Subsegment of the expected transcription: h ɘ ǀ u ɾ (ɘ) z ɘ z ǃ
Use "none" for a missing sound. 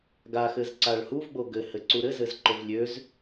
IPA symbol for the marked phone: ɘ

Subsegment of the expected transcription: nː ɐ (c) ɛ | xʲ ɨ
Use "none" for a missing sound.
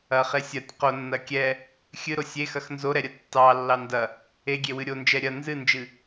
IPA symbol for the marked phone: kʲ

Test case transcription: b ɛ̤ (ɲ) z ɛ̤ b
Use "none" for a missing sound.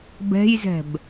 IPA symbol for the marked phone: j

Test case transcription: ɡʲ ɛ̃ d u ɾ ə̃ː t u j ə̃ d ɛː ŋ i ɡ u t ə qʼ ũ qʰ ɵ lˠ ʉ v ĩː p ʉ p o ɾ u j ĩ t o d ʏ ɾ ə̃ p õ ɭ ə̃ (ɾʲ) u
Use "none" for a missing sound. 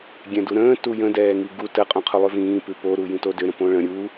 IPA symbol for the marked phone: ɾʲ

